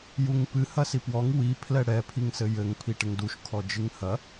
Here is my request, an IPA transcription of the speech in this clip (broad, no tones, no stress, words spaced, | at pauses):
juŋpɨ hɐsipwɔŋ wi pʰlɛɽɛ pʰiŋsɘjɘŋ pʰiʈɘŋduʃ kʰɔd͡ʒɨŋhɐ